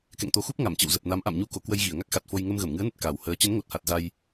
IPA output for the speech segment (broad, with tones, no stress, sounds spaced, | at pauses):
k ɛ̰˧˨ ŋ t̪ o˨˦ x u˦˥ p̚ ŋ a˧˩ m t͡ɕ ə̰˧˨ w z ə˨˩ p̚ n a˨˦ m ʔ a̰˧˨ m ɲ u˧ k o˧˩ k w ə˧ j ɣ i˧˩ ə̯ ŋ a˦˥ k̚ x a˨˩ t̚ f o˧ j ŋ ə˧ m ɣ ə˧˩ m ŋ ɨ˨˦ ə̯ n ə˨˩ t̚ k a˨˩ w h əː˨˦ t͡ɕ ə˨˦ n ŋ o˨˩ t̚ h a˨˩ t̚ z a˧ j